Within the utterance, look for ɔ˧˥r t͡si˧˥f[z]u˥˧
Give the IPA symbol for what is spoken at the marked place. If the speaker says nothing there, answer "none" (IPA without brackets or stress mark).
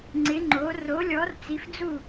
d͡z